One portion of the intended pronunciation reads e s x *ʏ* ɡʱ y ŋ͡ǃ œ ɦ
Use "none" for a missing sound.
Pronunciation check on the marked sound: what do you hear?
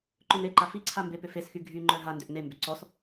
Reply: y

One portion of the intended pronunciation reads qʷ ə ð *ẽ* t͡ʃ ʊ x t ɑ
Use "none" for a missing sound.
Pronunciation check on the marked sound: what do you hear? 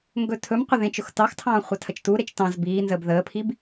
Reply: ẽ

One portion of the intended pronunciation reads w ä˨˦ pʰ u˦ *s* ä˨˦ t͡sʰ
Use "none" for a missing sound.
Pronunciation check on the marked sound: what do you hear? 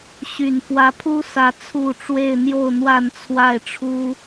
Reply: s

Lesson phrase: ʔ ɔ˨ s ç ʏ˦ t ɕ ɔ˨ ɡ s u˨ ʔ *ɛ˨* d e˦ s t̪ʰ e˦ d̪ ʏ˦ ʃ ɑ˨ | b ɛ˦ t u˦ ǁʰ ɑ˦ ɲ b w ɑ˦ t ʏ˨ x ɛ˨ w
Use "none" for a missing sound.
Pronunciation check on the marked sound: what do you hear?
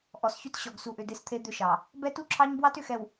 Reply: ʏ˨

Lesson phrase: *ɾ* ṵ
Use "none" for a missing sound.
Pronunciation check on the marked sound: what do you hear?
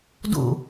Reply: d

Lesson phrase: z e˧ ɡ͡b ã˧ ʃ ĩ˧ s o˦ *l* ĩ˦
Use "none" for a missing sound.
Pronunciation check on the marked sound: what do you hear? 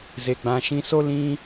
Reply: l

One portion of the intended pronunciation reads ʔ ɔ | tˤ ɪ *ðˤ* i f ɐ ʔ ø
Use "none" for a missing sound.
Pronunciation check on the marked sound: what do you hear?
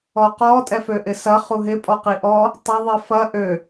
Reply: ðˤ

